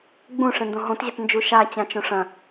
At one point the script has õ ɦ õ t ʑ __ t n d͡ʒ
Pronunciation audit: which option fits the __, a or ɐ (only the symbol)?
ɐ